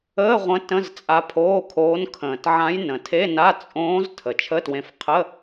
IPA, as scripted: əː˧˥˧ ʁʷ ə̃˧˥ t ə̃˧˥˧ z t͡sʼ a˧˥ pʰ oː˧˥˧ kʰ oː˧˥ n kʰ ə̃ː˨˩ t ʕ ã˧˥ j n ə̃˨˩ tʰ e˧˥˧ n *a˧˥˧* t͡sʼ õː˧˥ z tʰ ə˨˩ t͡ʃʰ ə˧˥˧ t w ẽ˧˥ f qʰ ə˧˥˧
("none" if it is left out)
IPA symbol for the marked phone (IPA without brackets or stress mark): a˧˥˧